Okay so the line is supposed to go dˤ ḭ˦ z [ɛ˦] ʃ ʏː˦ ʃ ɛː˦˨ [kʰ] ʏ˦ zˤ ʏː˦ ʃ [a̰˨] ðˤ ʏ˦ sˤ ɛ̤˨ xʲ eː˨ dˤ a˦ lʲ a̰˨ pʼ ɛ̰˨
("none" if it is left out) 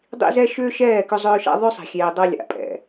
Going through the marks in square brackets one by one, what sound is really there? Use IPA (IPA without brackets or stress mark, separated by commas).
ɛ˦, k, a̰˦